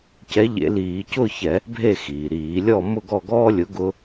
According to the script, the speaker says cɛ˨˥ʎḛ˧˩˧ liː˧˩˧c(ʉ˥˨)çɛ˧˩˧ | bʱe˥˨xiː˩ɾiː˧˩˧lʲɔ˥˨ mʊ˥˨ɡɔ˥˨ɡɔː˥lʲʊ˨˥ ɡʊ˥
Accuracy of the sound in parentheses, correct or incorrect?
incorrect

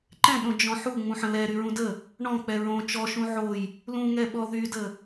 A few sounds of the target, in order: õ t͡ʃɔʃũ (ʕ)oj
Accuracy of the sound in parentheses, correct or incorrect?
correct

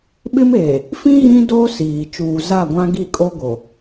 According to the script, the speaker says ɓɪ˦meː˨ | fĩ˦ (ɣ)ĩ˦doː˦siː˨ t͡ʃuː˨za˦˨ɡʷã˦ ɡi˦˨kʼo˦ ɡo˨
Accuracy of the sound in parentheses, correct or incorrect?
correct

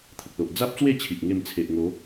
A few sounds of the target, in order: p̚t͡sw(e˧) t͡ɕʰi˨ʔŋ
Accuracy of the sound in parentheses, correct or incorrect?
incorrect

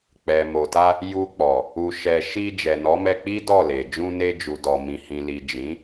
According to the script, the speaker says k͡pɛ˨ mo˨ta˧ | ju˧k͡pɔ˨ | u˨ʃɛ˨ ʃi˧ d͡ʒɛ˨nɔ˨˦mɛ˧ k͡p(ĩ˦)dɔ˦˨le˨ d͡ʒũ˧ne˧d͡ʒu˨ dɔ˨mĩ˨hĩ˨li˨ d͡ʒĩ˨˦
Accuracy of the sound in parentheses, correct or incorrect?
incorrect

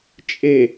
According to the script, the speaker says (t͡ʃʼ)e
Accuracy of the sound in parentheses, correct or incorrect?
correct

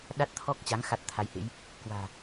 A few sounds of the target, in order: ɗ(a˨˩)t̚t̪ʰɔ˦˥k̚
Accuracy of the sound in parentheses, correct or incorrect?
incorrect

